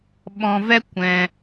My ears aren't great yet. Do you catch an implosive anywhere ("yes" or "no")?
yes